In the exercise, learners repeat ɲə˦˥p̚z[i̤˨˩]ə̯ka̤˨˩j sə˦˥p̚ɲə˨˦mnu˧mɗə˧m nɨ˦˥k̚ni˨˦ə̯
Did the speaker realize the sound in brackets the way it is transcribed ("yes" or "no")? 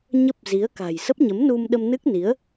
no